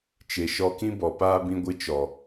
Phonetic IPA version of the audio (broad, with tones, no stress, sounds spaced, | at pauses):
t͡ʃ e˨ ʃ ɔ˧ k ĩ˦ b ɔ˨ p aː˦ b ĩ˧ ɡʷ ɨ˧ t͡ʃ ɔ˨